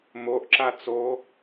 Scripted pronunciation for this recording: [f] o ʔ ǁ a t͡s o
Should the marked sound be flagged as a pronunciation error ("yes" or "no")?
yes